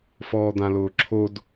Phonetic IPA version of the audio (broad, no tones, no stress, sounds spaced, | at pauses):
f ɔː d̪ ã l ʊː ǁʰ o d